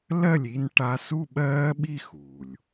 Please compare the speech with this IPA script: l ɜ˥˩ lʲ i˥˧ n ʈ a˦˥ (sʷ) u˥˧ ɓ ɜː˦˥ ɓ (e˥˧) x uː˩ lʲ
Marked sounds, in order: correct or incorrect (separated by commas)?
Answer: incorrect, incorrect